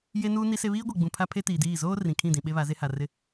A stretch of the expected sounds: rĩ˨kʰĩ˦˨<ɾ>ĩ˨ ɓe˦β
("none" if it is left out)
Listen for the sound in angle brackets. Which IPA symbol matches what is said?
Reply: d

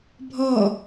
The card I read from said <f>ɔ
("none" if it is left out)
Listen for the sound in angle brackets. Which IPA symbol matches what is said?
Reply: bʱ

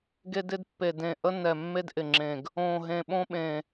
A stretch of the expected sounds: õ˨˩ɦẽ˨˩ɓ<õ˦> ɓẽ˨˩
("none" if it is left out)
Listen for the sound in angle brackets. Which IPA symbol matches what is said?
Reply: õ˦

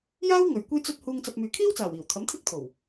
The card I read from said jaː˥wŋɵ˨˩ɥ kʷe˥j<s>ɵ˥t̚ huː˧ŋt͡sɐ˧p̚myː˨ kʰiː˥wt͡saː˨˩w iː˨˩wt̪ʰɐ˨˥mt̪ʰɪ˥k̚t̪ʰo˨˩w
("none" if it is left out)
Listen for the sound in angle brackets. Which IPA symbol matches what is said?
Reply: t͡s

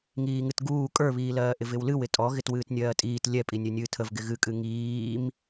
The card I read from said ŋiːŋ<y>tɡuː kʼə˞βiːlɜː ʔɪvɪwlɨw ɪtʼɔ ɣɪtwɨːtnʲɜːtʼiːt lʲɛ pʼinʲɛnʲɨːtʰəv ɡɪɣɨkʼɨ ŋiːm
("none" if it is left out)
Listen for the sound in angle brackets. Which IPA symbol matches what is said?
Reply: ɨ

